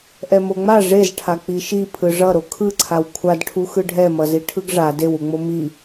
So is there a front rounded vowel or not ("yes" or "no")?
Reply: no